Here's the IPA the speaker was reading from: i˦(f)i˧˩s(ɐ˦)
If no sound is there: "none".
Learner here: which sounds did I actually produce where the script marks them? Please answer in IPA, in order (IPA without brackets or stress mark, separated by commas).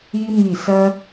m, ɐ˦